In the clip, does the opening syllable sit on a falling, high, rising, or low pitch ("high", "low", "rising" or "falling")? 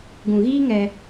low